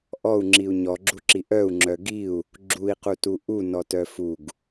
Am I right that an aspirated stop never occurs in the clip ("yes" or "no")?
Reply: yes